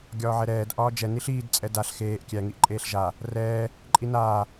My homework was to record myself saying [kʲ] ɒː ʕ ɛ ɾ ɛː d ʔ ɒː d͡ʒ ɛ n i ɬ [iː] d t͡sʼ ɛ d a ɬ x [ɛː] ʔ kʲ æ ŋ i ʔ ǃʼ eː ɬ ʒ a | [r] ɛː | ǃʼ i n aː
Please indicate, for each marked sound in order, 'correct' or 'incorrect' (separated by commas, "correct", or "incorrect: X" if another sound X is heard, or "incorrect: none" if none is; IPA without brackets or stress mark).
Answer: incorrect: ɡʲ, correct, incorrect: eː, correct